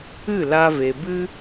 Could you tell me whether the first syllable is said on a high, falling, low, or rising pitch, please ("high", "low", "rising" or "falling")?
falling